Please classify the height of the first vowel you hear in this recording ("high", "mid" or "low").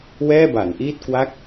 mid